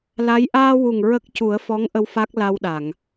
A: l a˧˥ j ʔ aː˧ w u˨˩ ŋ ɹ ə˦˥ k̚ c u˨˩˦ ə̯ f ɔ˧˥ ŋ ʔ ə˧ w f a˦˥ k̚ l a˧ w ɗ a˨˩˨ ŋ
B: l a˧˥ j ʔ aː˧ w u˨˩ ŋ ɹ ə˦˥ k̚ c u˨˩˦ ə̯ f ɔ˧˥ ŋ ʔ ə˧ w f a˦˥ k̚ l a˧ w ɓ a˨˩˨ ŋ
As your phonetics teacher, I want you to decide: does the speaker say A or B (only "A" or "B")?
A